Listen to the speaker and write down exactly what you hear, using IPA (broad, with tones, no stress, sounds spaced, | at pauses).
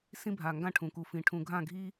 s ĩ˦ bʱ a˨ ŋ ɡ ã˦ ʈʰ ũ˨ k u˨ f ĩ˨ ʈʰ ũ˨ ɡʱ ã˦˨ ɡʱ i˦